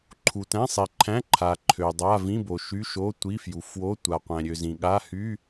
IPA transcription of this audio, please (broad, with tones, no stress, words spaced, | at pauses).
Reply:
ǃʰu˨tæ̃˧˥˧sˤi˨ǃʰæ̃˧˥˧ ǃʰa˨ ǃʰø˨dˤa˧˥˧ vĩ˧˥˧bo˨ʃy˧˥˧ʃo˧˥˧ tʷi˧˥˧fju˨ fwo˧˥˧ tʷa˨qʷæ̃˨ɾʲø˨ zĩ˨ɠa˧˥˧ hy˧˥˧